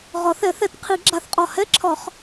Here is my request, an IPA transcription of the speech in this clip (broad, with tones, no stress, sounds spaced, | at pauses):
ʁ ɒ˨˩˦ θ ɛ˨˩˦ θ ɛ˨˩˦ t qʰ i˨˩˦ ɡ͡ǁ a˨˩˦ θ qʼ ɒ˨˩ h ɛ˧˥˧ ǁʰ ɒ˨˩˦ χ